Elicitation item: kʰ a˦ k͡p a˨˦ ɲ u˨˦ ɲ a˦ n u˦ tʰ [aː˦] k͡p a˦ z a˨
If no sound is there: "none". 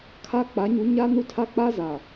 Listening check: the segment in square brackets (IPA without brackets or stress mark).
a˦